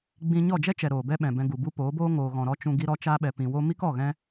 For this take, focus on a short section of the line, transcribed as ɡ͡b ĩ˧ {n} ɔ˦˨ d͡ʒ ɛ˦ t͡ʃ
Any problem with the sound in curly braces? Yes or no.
yes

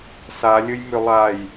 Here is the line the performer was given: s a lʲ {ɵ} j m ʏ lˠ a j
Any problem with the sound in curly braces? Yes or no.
no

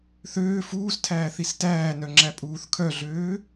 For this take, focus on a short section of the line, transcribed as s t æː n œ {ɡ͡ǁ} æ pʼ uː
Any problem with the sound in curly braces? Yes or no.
yes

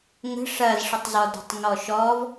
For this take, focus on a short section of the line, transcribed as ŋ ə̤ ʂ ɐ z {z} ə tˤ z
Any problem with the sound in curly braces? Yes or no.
yes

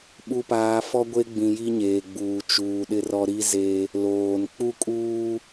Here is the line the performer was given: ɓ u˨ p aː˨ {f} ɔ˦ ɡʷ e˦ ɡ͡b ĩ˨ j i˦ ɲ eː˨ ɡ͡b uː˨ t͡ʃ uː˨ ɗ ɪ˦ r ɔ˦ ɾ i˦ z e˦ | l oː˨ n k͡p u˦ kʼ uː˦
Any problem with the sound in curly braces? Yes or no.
no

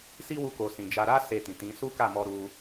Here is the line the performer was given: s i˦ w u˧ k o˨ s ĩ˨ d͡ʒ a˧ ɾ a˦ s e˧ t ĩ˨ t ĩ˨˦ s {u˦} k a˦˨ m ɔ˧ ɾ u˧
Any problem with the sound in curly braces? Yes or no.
no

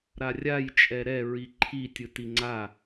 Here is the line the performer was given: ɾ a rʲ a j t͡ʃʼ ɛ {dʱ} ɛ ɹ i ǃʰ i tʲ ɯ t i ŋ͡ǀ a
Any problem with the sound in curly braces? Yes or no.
yes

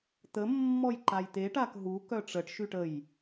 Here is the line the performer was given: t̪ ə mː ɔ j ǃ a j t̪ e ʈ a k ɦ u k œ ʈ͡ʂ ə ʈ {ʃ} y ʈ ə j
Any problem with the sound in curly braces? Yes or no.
no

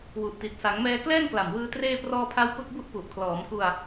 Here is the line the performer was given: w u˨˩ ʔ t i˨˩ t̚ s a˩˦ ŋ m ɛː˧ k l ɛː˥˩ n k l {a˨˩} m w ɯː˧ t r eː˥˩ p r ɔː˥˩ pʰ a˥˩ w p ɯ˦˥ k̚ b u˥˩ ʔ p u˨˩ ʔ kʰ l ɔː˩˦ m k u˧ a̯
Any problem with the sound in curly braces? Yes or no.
no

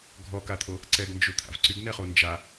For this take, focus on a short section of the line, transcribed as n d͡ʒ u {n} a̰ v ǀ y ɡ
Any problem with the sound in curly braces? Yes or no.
yes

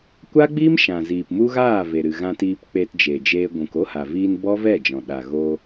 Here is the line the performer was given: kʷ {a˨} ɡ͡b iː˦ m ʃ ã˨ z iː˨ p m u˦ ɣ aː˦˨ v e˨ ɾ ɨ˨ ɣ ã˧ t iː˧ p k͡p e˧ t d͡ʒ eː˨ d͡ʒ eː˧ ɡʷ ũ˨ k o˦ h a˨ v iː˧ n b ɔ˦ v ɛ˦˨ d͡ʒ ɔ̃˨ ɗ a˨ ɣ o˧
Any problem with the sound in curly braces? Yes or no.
yes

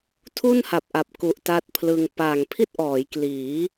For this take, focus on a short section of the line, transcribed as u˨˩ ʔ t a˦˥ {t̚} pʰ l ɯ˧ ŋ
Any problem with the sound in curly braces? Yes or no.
no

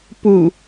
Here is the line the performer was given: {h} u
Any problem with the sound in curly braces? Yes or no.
yes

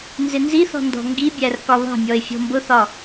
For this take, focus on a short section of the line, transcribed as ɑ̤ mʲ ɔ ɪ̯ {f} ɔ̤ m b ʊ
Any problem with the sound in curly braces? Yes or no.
yes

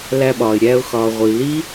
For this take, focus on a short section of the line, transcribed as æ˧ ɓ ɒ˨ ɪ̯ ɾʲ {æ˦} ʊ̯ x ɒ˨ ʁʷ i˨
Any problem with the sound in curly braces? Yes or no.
yes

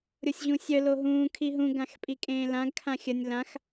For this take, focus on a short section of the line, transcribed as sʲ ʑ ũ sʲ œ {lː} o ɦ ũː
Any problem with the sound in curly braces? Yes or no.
yes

